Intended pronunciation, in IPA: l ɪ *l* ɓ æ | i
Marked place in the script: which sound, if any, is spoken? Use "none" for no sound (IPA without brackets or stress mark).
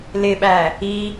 none